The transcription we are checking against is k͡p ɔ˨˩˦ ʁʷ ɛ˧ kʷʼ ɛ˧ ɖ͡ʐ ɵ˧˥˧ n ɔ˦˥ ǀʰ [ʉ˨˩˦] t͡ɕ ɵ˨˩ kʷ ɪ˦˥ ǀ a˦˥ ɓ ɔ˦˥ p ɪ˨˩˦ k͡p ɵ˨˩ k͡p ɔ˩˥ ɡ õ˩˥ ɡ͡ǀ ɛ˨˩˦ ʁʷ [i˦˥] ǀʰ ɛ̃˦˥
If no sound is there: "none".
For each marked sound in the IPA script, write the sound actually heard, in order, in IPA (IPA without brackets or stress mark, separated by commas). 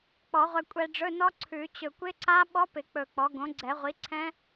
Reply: ʉ˨˩˦, i˩˥